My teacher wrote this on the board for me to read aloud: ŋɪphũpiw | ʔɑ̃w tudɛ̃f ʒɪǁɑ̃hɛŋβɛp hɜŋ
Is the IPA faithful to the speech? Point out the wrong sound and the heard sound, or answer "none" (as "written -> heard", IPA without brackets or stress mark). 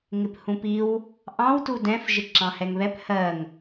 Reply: none